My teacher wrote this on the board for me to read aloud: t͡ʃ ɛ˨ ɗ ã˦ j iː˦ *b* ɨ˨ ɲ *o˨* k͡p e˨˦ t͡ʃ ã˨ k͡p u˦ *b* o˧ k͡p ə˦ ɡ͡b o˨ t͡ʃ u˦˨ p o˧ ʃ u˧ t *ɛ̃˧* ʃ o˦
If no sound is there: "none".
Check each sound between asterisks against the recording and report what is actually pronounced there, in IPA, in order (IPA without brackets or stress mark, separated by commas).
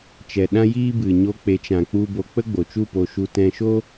b, o˧, b, ɛ̃˧